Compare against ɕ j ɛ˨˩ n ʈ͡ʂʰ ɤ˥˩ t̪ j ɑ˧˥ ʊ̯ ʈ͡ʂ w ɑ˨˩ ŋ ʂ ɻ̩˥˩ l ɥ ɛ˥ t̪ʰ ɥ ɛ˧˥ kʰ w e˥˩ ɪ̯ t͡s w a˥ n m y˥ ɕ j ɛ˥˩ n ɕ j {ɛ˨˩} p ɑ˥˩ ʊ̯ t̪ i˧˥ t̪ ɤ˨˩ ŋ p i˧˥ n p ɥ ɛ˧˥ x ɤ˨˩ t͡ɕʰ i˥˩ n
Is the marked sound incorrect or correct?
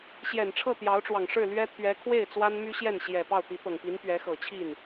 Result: correct